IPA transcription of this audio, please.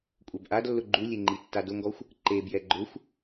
kʷʼ ɛ b ʔ a d lː ʊ ɡ͡ǃ u lʲ e ŋ͡ǃ i tː a d ʊ ŋ ɡ ɔ xʷ | ǃ e b j ɛ ɡ͡ǃ ʊ xʷ

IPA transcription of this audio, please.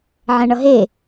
ʕ ɛ̃ ɳ ʌ ɦ e

